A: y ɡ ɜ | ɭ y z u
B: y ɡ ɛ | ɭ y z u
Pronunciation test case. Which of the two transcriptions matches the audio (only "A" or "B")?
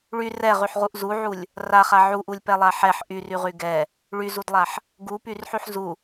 B